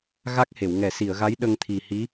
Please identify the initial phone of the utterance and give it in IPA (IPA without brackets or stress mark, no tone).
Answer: ɣ